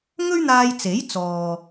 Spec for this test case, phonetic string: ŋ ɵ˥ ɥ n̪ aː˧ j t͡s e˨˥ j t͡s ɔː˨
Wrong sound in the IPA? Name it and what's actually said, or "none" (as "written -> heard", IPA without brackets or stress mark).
none